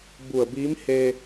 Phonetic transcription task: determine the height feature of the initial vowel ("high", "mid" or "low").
high